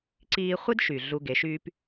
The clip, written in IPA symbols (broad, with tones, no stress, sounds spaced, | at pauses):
ǀ iː˧ χʷ i˦ d ʃ y˨ ɮ u˧ ɡ e˨˦ ʃ yː˦ p